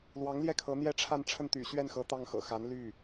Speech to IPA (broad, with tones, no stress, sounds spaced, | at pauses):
l w ɑ˧˥ ŋ l j ɛ˥˩ kʰ ɤ˧˥ n̪ j ɛ˥ ʈ͡ʂʰ a˥˧ n ʈ͡ʂʰ ə˥˩ n t̪ y̰˨˩ ɕ ɥ ɛ˥˩ n x ɤ˧˥ t̪ ɑ˥˩ ŋ x ɤ̰˨˩ x a˧˥ n l y˥˩